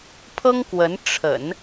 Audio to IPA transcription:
pʰɤ˥ŋ kwə˧˥n ʈ͡ʂʰə̰˨˩˦n

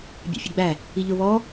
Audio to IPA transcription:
bʲa̰fʲʊɡ͡bæ | iʎʊ βɔ

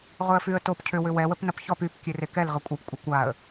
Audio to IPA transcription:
ʁʊə̯fyə̯top cʰʏwʏ wɛwəp nɐpçɔp yp kʲørekɛl ʁəkʷʼap kʷʼɐkʷaə̯

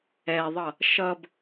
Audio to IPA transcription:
ɛðˤʌ | ʃʌb

